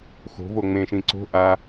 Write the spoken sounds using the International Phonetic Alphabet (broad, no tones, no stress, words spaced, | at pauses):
xo̤vo ŋ͡mẽʃĩ ǀo̤ ʔa